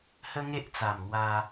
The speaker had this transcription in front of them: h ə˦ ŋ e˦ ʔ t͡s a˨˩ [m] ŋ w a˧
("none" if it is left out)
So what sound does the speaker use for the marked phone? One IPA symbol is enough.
m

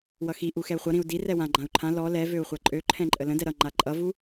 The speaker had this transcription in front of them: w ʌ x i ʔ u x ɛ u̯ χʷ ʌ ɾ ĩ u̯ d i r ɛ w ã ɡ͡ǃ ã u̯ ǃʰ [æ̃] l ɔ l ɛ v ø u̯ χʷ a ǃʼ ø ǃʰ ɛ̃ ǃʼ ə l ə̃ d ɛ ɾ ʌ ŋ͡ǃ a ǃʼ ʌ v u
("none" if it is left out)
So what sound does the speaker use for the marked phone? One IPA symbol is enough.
ã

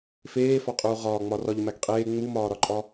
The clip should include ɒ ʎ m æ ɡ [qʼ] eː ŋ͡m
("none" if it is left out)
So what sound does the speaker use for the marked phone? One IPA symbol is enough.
qʼ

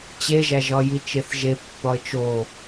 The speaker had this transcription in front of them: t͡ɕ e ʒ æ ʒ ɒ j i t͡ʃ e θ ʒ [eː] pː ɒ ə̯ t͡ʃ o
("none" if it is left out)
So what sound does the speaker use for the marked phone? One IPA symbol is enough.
e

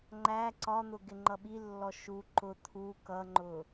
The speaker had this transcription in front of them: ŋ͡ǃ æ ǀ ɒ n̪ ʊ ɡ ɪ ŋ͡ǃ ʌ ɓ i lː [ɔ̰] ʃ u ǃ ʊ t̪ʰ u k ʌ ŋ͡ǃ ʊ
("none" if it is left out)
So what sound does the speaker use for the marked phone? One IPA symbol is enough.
ɔ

